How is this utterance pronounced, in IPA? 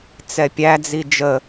t͡sɛpʲæd͡zi d͡ʒə

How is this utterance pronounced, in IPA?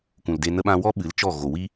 kʷũ˨lde˧ nə˧ɓã˧wɔ˦ ɓɨ˨˦lt͡ʃɔ˦˨ ɣo˨wi˦

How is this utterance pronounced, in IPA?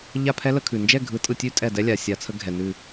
ʎa˥˨pʰɛ˦˥lə˨˩˦ kʰʉ˩ nd͡ʒɛ˥˨ɡʱɯ˨˩˦tʼɯ˧˩tʲʉ˦˥ tʼɛ˧˩dɛ˦˥lʲa˩ sʲa˨˩˦t͡sʰə˨˦ ɡʱɛ˩nʉ˧˩

